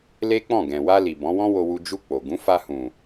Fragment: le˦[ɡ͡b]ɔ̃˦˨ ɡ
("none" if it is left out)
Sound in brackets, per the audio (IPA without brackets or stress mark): k͡p